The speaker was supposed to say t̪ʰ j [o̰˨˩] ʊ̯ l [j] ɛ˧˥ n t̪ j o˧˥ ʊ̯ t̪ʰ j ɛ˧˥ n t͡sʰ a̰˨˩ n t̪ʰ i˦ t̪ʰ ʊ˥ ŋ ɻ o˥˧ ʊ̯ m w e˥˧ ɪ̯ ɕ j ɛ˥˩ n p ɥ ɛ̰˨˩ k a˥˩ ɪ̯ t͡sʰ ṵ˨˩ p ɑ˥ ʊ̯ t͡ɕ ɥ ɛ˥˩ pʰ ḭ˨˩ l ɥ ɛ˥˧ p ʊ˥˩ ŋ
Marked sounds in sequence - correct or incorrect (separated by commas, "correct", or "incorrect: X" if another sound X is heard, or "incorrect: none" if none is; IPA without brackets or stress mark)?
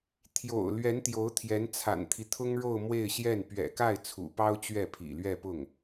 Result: correct, incorrect: ɥ